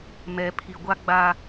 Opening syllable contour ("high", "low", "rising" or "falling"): low